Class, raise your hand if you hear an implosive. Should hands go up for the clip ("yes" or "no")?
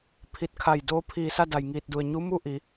no